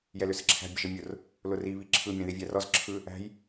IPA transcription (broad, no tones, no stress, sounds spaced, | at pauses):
j ɛ l ʏ s ə ǁʰ æ̤ bʲ ə ʒ ə mʲ ʊ r | l ʊ r i β i ǁʰ ɯ mʲ ɛ̃ ð i vʲ æ r ɔ z ǁʰ ɯ | æ̤ j